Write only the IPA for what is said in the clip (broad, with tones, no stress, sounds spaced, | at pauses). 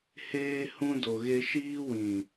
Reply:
h eː˧ h ũ˧ d o˨ ɣ e˧ ʃ iː˧ w ĩ˨